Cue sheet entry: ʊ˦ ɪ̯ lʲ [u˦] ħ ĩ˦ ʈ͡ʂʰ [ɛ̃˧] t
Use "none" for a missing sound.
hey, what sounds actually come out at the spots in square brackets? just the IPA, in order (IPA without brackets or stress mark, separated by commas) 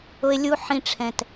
u˦, ɛ̃˧